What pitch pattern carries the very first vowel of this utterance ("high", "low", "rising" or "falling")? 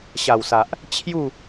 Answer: low